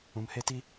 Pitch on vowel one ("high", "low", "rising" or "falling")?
low